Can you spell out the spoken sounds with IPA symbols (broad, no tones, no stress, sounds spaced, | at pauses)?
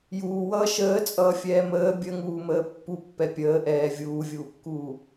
j uː w ʌː ʃ əː t͡sʼ ʌː fʲ ɛː m əː bʲ ə ŋ uː m əː pː u pː ɛ pʲ əː ʔ ɛː vʲ uː vʲ uː kː uː